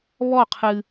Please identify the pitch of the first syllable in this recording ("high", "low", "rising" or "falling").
falling